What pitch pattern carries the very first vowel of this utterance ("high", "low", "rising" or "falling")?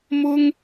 high